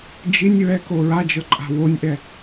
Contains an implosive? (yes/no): no